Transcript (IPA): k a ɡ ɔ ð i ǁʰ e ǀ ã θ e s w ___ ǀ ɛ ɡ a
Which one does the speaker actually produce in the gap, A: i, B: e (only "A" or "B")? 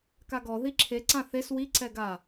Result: A